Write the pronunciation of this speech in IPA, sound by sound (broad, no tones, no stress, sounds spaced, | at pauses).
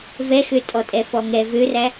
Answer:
v ɛ x ø tʼ ɔ tʼ ɛ f ɔ ŋ ɛ v ø r æ